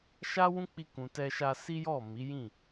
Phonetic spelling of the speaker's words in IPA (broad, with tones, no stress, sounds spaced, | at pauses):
ʃ a˦ w ũ˦ k͡p i˧ k ũ˨ t ɛ˧ ʃ a˧ s i˦ j ɔ˦˨ m i˨˦ j ĩ˦˨